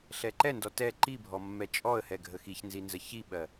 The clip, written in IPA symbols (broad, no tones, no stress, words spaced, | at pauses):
ɬɛǃɛndɔ tɛ ǃibʱɔ mːɛt͡ʃʼɔə̯hɛ ɡʱəxiçnzi nzəçiɓɜ